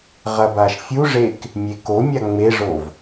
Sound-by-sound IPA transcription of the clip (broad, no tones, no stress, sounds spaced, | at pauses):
ʁ ɐ b a ʃ fʲ u ʐ e k | mʲ e k o mʲ a ŋ͡m e ʐ o v